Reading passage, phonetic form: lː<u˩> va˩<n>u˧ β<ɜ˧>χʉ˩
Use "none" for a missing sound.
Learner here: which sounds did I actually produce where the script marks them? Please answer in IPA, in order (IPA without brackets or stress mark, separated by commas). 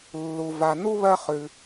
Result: u˩, n, ɜ˧